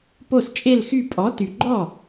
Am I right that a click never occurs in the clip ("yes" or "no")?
no